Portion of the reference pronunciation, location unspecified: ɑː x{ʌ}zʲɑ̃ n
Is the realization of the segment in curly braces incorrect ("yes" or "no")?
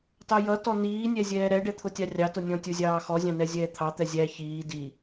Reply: yes